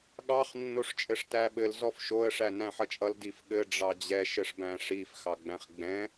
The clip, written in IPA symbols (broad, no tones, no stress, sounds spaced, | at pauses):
ɠ ɑ χ nː o ʂ t͡ʃʼ ɘ ʂ t æ ɓ ɘ l z ɔ f ʃ o ə̯ ʂ æ n æ̃ ħ ʌ t͡ʃʼ ʌ l d i f ɠ ɘ ɖ͡ʐ ɑ d͡ʑ ɛ ʃ ɘ ʂ b æ̃ ʂ i f x ɑ ɡ͡b æ̃ χ ɡ͡b ɛ̃